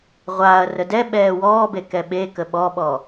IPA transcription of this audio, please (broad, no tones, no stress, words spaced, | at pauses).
ʁʷaːɐ̯rə dɛ ɓɛːwɔːbe kɛɓekə ɓɔɓɔ